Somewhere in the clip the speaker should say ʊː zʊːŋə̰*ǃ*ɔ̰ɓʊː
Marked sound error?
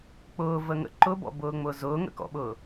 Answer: yes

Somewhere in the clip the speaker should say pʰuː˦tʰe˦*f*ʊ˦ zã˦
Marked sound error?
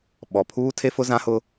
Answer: no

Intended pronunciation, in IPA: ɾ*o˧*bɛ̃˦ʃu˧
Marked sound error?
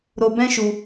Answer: no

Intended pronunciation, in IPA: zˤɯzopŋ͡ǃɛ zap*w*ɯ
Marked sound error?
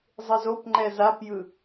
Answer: yes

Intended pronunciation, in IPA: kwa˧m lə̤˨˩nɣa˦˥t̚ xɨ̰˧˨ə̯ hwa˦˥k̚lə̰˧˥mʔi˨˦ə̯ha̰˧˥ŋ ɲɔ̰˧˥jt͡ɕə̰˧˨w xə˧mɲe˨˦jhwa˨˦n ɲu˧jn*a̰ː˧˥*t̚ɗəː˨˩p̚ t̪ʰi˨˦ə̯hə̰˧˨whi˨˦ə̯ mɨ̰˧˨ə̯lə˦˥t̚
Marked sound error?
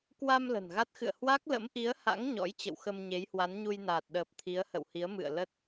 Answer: yes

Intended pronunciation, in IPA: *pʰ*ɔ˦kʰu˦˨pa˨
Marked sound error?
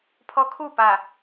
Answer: no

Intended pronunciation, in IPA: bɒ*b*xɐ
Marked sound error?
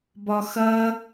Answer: yes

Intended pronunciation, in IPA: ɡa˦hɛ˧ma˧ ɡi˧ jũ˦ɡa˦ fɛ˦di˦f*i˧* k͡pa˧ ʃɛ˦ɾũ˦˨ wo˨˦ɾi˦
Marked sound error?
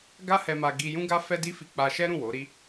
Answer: no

